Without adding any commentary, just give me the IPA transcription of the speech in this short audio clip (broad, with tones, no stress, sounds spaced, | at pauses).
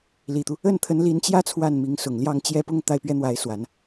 l i˨˩ t̪ u˦ | ə˥˩ n t̪ʰ ə˧˥ n l i˧˥ n t͡ɕ j ä˥ t͡sʰ w a˥˩ n m i˧˥ ŋ s ʊ˨˩ ŋ l j ɑ˥˧ ŋ t͡ɕ j ɛ˥˧ p ʊ˥˧ ŋ t̪ a˥˩ ɪ̯ p ɥ ɛ˥ n̪ w a˧˥ ɪ̯ s w a˨˩˦ n